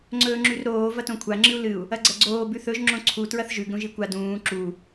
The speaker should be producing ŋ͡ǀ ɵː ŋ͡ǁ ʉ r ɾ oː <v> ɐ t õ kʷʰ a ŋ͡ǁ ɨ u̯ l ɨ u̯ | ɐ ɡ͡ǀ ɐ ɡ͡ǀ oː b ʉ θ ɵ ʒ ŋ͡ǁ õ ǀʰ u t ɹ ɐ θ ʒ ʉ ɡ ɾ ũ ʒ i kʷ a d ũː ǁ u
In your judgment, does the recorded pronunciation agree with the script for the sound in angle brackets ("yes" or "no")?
yes